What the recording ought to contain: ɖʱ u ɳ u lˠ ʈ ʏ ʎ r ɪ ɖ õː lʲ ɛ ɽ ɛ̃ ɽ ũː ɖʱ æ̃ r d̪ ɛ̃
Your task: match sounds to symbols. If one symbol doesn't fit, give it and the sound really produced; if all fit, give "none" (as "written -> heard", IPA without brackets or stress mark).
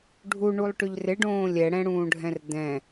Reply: æ̃ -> ɛ̃